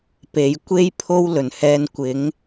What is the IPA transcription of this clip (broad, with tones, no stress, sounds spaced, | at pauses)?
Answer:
p e˨˥ j kʷ e˥ j pʰ o˥ w l ɵ˨˩ n h ɛː˧ n kʷ ɪ˨˥ ŋ